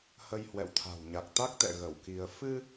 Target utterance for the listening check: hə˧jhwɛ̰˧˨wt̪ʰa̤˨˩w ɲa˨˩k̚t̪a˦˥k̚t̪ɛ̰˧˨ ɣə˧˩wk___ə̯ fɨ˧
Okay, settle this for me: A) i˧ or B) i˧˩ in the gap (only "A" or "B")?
A